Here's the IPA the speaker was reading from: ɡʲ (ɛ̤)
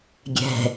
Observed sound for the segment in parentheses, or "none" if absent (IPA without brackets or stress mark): ɛ̤